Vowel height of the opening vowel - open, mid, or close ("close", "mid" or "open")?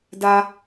open